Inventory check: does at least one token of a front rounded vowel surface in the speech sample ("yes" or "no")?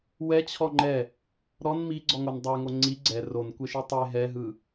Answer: no